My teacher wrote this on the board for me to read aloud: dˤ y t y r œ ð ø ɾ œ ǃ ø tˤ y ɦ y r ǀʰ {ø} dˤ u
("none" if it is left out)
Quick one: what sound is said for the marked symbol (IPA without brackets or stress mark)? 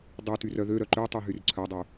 œ